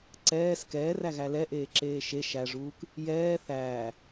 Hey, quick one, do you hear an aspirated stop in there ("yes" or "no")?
no